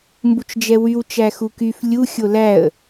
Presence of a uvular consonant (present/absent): absent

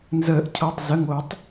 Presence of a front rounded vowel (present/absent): absent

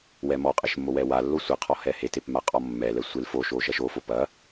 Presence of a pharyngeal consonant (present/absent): absent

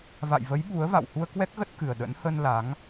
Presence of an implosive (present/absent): present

